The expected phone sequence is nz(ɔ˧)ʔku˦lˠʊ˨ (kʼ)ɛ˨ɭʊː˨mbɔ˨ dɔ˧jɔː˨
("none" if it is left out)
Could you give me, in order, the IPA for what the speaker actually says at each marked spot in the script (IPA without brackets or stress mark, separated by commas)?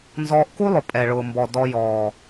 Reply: ɔː˧, pʼ